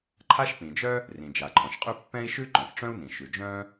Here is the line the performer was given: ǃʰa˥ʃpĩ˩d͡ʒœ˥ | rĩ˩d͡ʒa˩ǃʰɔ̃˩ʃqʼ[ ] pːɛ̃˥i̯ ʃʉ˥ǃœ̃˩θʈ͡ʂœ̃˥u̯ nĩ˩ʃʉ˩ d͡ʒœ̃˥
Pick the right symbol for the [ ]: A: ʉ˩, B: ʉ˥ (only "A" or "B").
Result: B